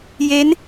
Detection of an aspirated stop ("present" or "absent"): absent